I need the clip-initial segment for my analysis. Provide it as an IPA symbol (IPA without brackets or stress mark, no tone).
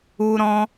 u